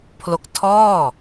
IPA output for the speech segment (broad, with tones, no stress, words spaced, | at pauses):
pʰlo˦˥k̚tʰɔː˥˩